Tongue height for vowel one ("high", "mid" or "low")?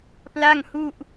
low